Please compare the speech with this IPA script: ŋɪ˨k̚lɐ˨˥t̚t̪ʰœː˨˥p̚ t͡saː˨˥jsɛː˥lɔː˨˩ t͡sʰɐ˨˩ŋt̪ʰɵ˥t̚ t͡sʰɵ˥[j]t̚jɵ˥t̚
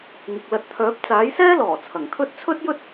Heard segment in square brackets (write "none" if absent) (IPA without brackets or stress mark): none